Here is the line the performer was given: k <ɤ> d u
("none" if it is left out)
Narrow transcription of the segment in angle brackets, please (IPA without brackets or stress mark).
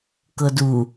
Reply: ɤ